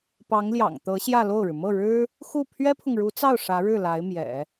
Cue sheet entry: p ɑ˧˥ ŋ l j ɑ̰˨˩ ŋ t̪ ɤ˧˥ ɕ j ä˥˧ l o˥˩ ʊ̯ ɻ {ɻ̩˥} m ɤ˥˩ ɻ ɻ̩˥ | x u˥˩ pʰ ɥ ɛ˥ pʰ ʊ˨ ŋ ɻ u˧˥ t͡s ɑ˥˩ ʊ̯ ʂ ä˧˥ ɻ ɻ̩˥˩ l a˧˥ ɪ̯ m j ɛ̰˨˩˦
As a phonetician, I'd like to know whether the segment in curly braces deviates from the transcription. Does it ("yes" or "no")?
yes